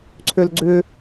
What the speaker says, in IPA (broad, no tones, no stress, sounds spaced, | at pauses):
ǀʰ ø l ɡ͡ǀ ʏ